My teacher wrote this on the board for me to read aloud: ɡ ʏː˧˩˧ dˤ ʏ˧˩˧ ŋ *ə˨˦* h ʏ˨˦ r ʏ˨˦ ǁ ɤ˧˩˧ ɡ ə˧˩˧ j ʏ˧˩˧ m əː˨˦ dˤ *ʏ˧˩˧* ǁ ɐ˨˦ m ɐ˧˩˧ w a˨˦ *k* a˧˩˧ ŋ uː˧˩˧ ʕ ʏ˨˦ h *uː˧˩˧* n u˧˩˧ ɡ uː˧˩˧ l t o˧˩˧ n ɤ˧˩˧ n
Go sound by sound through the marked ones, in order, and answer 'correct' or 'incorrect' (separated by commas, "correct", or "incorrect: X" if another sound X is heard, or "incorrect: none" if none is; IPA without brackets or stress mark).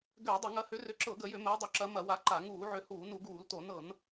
incorrect: ɐ˨˦, correct, incorrect: ǃ, correct